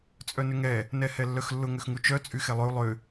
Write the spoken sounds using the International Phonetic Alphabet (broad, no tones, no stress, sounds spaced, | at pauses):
t͡sʼ œ n ʏ ŋ ɛ | n ɛ h ɛ lː œ x lː ʊ ŋ ʏ x ŋ u t͡ʃ œ t͡sʼ y x ɛ lˠ ø u̯ lˠ ʏ